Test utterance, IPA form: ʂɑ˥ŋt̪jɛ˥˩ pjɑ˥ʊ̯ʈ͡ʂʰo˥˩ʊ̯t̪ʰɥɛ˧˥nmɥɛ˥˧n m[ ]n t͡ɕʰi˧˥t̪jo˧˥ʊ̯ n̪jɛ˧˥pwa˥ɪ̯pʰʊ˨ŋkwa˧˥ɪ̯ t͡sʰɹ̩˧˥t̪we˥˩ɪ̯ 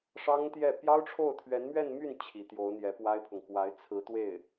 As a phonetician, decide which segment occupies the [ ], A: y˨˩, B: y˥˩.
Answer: B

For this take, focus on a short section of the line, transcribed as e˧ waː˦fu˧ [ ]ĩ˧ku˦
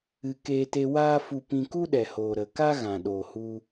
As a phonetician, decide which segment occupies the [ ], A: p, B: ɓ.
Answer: A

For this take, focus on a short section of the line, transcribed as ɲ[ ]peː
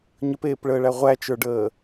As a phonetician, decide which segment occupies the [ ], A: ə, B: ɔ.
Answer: A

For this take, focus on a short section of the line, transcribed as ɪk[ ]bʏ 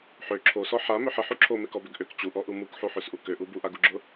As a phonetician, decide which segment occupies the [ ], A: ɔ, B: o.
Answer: A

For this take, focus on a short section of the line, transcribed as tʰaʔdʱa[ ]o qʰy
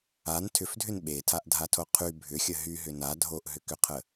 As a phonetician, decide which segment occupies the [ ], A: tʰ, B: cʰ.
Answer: A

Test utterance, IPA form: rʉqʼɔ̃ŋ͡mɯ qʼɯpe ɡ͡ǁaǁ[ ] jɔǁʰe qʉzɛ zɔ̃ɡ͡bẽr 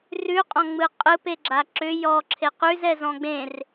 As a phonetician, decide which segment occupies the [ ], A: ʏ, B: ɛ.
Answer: A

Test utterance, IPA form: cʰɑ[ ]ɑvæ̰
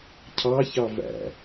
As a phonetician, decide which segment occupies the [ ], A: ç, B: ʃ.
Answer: A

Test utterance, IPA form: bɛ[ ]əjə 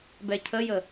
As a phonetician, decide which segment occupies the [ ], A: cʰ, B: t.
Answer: A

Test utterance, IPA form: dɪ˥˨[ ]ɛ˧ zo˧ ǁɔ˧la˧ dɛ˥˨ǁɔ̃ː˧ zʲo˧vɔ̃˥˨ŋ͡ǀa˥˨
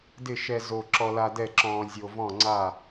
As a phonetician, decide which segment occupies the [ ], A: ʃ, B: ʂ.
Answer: A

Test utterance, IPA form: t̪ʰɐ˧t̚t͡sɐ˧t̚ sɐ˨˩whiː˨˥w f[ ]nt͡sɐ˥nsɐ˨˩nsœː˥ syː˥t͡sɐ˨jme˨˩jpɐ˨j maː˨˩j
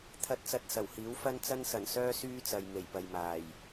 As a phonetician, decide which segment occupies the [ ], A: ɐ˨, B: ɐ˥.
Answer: B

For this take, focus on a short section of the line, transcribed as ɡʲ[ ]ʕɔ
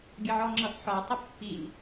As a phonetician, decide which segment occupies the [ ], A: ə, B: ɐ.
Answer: A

